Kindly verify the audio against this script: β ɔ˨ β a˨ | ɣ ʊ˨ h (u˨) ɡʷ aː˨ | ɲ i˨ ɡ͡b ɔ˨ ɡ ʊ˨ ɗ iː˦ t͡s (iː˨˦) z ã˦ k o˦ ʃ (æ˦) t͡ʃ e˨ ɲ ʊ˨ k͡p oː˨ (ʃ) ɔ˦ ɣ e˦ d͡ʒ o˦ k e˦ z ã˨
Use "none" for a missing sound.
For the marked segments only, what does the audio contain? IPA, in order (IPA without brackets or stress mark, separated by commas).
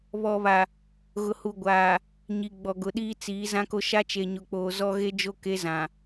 u˨, iː˨˦, a˦, z